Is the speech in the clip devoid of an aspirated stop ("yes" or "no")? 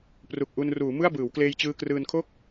no